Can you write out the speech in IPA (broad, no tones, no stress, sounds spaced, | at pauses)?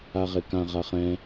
a ʁ e k ã ʁ a χ ɛ̃